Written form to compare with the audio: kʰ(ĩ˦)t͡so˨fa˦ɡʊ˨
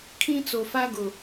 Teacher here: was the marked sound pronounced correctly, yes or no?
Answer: yes